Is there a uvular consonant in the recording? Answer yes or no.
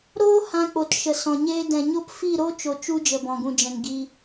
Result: no